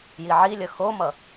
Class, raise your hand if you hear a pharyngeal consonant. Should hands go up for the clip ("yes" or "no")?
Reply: yes